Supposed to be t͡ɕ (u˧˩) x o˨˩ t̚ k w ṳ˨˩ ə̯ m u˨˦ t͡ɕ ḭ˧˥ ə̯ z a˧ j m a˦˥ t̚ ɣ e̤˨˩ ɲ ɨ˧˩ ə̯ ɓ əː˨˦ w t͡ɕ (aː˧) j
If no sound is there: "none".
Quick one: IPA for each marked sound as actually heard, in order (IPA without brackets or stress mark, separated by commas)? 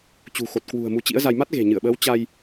ṳ˨˩, a˧